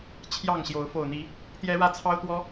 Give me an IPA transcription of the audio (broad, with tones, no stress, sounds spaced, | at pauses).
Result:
t͡ɕʰ j ɑ˥˨ ŋ ɕ j o˨˦ ʊ̯ f o˨˩ ʊ̯ n̪ i˨˦ | t̪ j ɛ˦ ɻ ä˥˨ t͡sʰ ɑ˦ ʊ̯ t̪ w ɔ˦